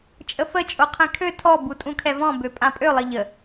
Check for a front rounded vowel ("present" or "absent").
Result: present